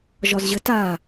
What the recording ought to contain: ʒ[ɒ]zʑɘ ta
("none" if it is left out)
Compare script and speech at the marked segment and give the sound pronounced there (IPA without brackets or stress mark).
ɒ